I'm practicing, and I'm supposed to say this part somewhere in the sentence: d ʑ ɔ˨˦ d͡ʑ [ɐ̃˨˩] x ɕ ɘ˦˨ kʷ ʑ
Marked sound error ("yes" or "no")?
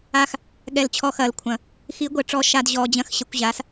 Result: yes